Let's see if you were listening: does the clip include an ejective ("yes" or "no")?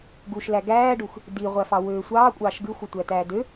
yes